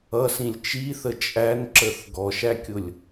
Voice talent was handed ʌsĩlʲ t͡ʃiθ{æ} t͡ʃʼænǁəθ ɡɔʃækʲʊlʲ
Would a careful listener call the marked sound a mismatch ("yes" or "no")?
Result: yes